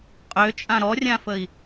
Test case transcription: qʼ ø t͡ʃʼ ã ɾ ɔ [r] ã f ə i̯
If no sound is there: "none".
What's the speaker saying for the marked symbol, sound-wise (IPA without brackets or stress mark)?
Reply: rʲ